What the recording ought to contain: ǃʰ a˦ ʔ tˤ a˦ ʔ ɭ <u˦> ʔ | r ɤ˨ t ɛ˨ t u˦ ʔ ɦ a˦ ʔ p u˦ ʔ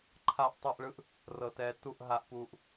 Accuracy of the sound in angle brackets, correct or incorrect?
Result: incorrect